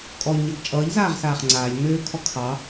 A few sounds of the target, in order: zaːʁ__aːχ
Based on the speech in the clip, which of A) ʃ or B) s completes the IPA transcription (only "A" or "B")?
B